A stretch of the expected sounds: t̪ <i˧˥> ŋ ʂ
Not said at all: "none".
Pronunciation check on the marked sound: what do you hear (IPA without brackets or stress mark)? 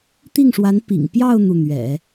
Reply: i˥˩